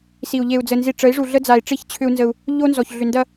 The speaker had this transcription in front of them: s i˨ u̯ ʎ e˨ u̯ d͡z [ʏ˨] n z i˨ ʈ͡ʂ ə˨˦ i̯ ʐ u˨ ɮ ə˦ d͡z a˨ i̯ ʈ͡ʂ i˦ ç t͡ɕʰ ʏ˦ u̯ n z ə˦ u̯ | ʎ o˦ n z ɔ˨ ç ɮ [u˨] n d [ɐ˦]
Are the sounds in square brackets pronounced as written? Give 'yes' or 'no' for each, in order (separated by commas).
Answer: no, no, yes